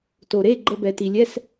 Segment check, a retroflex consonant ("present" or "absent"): absent